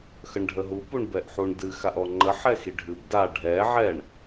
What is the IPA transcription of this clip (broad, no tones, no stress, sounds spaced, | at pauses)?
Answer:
x ə ɳ ɖʱ ə ɦ u p u ɳ b ɛ ʔ ħ u ɳ d ɨ x a ʔ ɔ ŋ͡ǃ ə ħ ɛ x i ɖʱ ɨ b d a ɖʱ ɛ ʕ ɛ ɳ